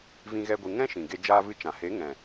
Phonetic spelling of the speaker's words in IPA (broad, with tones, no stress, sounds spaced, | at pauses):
v ĩ˦ ɣ ɛ˦ ɡʷ ɨ˧ ŋ ɛ̃˦ ʃ ĩ˨ ɡ e˧ d͡ʒ aː˧ v ɨ˧ t͡ʃ ã˨ h e˨˦ ŋ ɛ̃˨